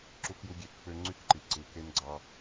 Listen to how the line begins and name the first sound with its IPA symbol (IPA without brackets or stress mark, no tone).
ǁ